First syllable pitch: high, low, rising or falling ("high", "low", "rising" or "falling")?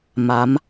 rising